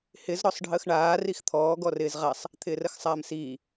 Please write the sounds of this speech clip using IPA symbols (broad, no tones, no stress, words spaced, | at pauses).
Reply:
hɪz ɾɔsˤɖʱəːxɳaː rixt̪ʰɔː ɡɔrɪːzʁasˤ | t̪ʰɪːrəxsˤaːmsiː